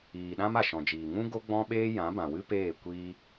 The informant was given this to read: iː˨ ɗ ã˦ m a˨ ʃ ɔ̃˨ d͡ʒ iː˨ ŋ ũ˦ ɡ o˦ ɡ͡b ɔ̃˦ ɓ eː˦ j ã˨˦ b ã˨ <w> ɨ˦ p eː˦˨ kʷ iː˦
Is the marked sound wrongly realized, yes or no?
no